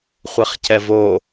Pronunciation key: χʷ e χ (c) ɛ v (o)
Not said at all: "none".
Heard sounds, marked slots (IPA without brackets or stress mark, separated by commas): c, o